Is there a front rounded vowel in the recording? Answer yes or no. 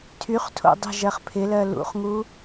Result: yes